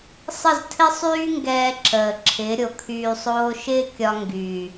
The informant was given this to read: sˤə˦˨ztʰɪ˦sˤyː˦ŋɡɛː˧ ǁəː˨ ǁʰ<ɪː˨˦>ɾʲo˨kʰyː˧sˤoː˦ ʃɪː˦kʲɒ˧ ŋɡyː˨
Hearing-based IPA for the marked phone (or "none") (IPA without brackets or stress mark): ɪː˨˦